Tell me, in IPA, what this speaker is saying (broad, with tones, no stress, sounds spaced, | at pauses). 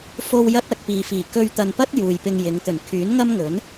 f o˧ w j ɐ˥ t̚ ɐ˧ k̚ p iː˨ f iː˨˩ k ɵ˧ ɥ t̪ ɐ˨ n p ɐ˥ t̚ j uː˨ j p ɪ˧ ŋ j ɪ˨˧ ŋ t̪ ɵ˨˩ n kʰ yː˨˥ n ŋ ɐ˥ m ŋ ɵ˨˥ n